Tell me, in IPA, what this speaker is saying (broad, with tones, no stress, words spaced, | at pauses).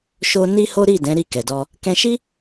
ʃo˧ ni˦ho˦ ɾi˦˨ dɛ̃˨˦ ɾi˦˨kɛ˨dɔ˧ | kɛ̃˧ʃi˦